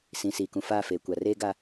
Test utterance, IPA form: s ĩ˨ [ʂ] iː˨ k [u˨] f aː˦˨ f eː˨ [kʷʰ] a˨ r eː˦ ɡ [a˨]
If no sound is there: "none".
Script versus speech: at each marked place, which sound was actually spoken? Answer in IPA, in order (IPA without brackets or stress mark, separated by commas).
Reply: s, ũ˨, kʷ, a˦